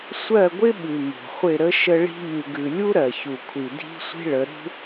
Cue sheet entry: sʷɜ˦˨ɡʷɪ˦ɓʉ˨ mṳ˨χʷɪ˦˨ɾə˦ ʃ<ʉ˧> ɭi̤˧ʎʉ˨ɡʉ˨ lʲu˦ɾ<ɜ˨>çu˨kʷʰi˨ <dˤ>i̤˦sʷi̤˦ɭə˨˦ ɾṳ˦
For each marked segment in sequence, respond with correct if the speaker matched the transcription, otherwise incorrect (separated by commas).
incorrect, correct, incorrect